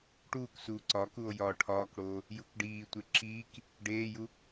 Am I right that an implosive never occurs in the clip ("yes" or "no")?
yes